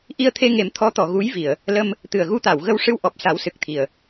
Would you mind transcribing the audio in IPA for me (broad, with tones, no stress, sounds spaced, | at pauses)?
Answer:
ʔ i˧ ə̯ t̪ʰ e˧ ŋ e˨˩˦ m t̪ʰ ɔ˧˥ t̪ ɔ˨˩˨ ɣ u˧˥ j v i˨˩˨ ə̯ | l ə˧ m | t̪ ɨ˨˩ ə̯ ɣ u˧ t̪ a˨˩˨ w ɣ ə˧ w ʂ ɨ˧ w ʔ ɔ˨˩ p̚ s a˨˩˦ w s ɨ˨˩ k̚ t̪ʰ i˨˩˨ ə̯